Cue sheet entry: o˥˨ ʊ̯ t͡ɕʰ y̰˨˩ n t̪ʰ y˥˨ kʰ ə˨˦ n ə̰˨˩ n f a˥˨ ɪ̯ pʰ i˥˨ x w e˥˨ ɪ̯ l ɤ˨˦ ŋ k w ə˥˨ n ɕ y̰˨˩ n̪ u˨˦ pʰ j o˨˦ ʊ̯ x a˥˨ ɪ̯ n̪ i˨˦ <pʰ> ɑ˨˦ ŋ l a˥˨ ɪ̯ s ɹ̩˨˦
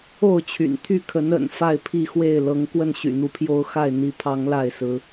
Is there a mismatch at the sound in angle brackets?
no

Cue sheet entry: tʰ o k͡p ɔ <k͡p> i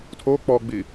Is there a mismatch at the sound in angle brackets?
yes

